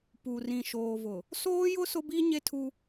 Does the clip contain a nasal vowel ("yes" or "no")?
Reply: yes